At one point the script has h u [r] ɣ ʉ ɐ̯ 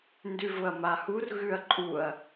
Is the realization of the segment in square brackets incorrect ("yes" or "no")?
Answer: no